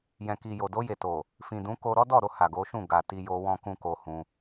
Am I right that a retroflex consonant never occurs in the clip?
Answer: yes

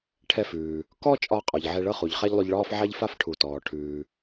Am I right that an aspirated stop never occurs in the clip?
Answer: no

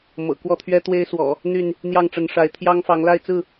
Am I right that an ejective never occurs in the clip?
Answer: yes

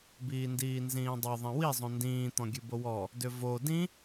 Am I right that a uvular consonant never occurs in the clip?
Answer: yes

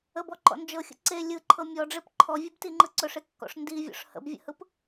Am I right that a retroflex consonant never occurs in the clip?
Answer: no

